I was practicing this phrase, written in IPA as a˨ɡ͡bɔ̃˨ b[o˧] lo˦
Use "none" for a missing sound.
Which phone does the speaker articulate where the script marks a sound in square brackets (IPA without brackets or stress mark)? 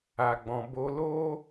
o˧